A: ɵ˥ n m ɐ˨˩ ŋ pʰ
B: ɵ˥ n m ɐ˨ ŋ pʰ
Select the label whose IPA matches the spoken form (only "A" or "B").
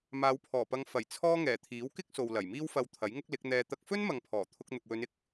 B